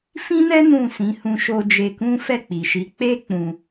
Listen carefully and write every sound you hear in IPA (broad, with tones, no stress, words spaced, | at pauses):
fĩ˦nɛ˦ nũ˦˨ sĩ˨˦ hũ˧ ʃo˧d͡ʒe˧kũ˦ fɛ˦˨k͡pi˨ʃi˨˦ k͡pe˦ k͡pũ˧